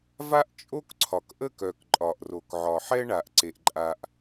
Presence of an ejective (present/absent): present